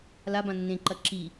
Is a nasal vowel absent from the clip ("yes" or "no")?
no